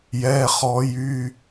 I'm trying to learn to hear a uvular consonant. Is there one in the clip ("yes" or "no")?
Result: yes